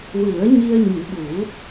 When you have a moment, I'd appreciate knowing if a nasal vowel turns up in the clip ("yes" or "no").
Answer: no